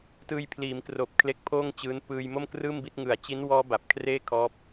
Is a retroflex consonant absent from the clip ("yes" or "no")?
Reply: yes